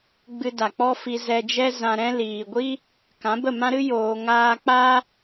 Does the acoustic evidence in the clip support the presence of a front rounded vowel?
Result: no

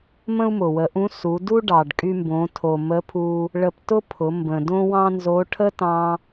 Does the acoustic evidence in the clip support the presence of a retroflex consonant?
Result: yes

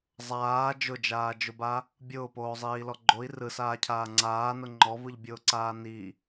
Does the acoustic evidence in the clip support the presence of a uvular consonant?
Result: no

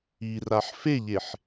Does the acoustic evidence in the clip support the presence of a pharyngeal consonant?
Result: yes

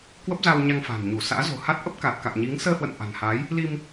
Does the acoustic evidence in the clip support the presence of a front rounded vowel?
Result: no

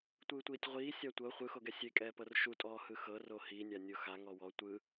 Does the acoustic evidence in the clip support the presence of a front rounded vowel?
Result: no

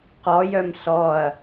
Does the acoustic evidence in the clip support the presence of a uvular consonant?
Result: yes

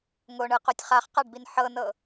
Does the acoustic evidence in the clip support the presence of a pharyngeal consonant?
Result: yes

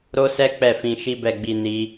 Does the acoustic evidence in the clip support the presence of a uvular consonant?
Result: no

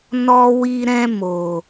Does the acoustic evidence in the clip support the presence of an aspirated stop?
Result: no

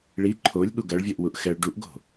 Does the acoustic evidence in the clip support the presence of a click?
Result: yes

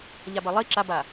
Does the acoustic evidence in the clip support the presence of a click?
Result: yes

